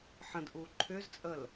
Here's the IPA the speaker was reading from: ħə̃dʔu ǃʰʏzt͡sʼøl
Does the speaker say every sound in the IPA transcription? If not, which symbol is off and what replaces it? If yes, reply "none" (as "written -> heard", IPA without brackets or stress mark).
ø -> ə